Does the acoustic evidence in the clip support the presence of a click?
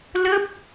no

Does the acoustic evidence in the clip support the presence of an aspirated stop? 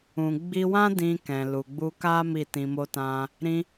no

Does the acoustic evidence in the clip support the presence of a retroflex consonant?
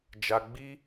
no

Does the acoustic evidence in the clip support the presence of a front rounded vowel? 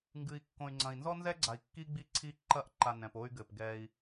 yes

